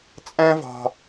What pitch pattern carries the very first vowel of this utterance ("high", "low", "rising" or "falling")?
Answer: high